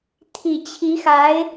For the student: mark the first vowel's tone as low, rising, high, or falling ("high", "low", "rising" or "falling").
low